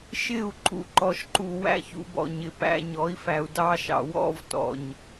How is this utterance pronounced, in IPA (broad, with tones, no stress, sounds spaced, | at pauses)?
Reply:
ʃ ɪ˦˨ u̯ ǃ ṵ˨ ǃ ɔ˨ ʃ ǃ u˨ w æ̰˧ ç ṵ˨ b ɔ̰˨ ɲ ɪ˨ p æ̰˦ ɲ ɔ˨˦ i̯ f æ˨ u̯ d ɑ˦ ʃ ɑ̰˨ w ɔ̰˦ v t ɔ̰˨ ɲ